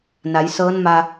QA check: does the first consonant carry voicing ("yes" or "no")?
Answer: yes